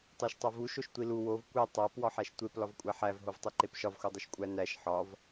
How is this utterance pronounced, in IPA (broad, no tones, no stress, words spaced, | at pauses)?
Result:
tˤæʃtˤovu ʃoʃtʷilu wov kʷe tˤæp wɒħæʃtʷep lɒvkʷʼæħæv ɦovtˤiǃepʃɒv xudˤiʃkʷʼæ næʃ ħɒv